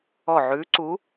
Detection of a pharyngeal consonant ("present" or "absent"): present